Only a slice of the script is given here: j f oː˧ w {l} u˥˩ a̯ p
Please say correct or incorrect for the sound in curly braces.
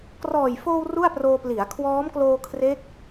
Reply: incorrect